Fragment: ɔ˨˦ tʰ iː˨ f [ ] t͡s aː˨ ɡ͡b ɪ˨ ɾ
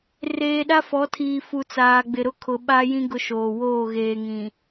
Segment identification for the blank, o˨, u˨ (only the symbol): u˨